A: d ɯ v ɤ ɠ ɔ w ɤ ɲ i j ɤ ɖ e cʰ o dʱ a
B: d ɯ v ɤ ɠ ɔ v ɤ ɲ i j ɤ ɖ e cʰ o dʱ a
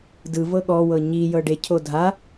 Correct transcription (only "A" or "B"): A